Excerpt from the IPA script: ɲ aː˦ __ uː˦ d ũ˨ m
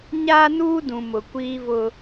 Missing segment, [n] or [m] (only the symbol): n